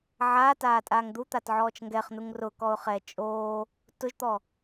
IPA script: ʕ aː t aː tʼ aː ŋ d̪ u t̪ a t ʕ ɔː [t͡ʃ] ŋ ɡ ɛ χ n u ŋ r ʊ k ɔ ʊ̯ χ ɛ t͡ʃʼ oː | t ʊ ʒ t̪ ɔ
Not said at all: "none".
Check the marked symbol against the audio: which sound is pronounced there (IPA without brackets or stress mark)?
t͡ʃ